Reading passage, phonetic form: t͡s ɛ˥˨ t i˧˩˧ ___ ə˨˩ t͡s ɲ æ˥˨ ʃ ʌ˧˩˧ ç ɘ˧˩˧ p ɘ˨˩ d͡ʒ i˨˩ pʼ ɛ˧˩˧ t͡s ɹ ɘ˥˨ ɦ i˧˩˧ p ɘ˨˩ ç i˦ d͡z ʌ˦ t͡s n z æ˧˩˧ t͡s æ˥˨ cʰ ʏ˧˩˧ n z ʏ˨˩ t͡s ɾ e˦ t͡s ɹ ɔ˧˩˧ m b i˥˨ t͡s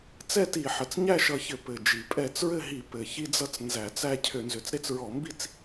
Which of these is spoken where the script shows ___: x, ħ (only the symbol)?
ħ